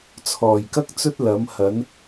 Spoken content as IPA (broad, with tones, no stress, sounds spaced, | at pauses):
t͡sʰ ɔː˨˩ j k ɐ˥ k̚ t͡s ɵ˥ t̚ l ɐ˨˥ m h ɐ˨˥ n